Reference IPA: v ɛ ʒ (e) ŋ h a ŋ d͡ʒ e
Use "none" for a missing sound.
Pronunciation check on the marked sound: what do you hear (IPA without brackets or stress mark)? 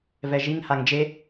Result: i